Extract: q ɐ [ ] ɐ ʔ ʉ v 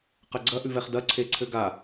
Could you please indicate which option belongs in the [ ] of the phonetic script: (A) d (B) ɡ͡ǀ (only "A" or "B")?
B